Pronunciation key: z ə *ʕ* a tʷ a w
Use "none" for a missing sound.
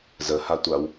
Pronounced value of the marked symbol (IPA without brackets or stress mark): h